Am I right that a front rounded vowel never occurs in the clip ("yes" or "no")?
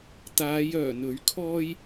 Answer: no